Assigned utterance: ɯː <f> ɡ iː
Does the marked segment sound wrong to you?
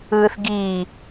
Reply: yes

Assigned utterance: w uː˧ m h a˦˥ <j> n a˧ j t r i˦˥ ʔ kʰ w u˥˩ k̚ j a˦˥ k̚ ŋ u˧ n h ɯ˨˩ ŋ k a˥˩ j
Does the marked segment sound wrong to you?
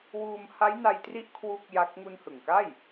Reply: no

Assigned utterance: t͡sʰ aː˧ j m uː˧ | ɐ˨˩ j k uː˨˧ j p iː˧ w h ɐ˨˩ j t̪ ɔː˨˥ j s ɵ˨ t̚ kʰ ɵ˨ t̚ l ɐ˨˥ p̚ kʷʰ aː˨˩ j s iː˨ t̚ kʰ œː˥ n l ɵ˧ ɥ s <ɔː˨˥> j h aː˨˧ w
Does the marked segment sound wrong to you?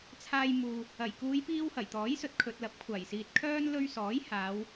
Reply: no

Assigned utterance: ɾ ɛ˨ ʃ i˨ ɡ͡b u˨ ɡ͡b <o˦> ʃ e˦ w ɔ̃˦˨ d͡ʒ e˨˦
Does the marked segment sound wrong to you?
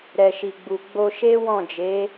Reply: yes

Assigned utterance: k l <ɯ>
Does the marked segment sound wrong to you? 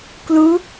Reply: yes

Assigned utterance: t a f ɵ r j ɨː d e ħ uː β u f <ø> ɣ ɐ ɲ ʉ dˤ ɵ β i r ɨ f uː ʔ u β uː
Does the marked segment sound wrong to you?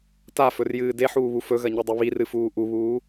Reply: yes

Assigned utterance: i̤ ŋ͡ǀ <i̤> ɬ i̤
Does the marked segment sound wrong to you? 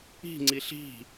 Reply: yes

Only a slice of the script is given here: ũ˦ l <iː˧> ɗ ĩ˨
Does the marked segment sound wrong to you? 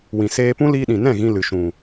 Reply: no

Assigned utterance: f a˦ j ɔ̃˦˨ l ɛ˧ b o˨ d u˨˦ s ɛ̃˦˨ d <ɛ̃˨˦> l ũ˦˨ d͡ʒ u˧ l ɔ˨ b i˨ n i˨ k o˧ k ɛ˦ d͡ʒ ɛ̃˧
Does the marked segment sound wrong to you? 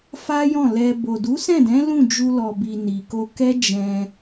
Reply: no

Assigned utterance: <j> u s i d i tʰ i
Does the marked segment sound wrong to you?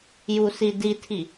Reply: no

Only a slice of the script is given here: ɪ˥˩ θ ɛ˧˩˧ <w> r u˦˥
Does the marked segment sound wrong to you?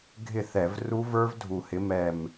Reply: yes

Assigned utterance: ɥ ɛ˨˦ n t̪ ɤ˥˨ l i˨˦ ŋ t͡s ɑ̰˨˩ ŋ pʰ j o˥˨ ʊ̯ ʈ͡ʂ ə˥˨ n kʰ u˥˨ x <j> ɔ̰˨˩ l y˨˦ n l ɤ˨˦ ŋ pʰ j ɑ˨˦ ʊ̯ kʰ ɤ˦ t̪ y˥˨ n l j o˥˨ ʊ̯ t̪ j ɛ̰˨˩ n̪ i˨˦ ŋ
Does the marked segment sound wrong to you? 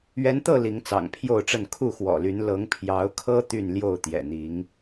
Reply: yes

